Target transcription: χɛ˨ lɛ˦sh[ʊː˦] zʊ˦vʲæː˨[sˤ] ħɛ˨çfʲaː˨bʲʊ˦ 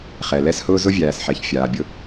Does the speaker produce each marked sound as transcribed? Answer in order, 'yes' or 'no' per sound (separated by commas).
yes, no